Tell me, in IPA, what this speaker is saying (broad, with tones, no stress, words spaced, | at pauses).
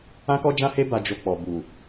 ã˦kɔ˦d͡ʒã˦he˦ ba˧ d͡ʒo˧k͡pɔ˨ bu˨